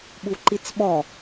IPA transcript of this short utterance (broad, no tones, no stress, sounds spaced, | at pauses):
ɓ u ǃ i t͡s ɓ ɔ